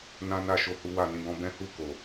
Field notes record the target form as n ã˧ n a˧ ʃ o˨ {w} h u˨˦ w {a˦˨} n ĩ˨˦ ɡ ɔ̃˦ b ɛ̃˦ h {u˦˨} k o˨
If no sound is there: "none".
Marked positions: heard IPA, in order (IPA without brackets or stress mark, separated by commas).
none, a˦˨, u˦˨